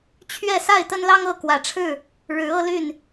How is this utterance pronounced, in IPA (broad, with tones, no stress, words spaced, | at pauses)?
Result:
t͡ɕʰɥɛ˥˨ sa˥˨ɪ̯t̪ə˦nlɑ˦ŋ ɤ˥˨ kwä˨˦ʈ͡ʂʰɻ̩˥˨ | ɻɻ̩˨˦ ɤ˦ly˥˨n